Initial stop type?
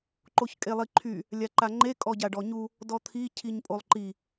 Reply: click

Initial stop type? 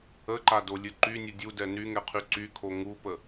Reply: click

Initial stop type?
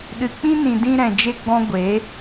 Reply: implosive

